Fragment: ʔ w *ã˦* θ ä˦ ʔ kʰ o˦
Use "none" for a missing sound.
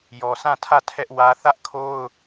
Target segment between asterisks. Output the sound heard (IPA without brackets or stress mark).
ä˦